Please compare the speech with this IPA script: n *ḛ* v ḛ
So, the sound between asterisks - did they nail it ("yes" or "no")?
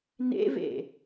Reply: yes